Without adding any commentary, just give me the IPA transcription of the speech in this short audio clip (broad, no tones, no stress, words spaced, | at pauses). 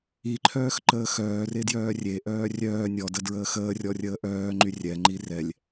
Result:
iǃʰœːxǃəː xœːredjœː rʲeʔœː rʲœː nʲɔdədɹəː xəːrʲɔrʲəː ʔœːŋ͡ǃy rʲɛŋ͡ǃi rɛlʲ